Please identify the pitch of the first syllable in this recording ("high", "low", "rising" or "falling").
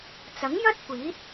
rising